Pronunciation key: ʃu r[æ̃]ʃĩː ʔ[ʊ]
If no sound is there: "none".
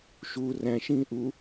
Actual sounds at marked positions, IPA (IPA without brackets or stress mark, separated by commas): æ̃, u